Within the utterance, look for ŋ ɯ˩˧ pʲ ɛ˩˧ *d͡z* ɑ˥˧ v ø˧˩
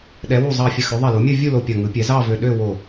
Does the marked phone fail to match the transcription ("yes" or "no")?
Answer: yes